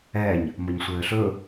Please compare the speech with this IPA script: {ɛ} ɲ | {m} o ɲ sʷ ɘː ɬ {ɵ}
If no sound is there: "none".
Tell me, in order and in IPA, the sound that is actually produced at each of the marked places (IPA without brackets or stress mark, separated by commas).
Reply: ɛ, m, ɵ